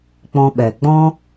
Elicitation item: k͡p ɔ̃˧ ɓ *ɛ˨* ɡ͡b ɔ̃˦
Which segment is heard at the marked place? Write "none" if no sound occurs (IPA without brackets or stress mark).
ɛ˨